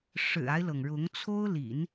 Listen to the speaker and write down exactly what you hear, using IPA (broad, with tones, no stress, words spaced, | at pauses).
ʂɻ̩˨˩a˦ɪ̯lɤ˩ŋɻʊ˧˥ŋ t͡sʰo˥ʊ̯lḭ˨˩˦n